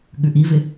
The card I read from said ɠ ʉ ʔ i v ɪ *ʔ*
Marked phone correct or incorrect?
incorrect